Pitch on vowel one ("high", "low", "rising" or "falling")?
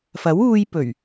rising